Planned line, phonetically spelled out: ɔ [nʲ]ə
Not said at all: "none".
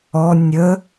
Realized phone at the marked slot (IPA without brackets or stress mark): nʲ